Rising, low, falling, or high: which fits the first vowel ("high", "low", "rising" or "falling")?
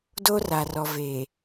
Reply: high